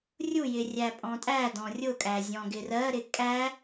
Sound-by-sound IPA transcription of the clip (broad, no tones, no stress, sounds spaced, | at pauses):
rʲ u j ɪ rʲ æ pʼ ɔ̃ tʼ æ d ɔ̃ rʲ ʊ kʼ æ zʲ ɔ̃ ɡ ɪ r ɜ ɾ ɪ kʼ æ